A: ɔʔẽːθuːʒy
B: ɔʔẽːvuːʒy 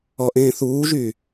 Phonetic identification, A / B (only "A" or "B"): A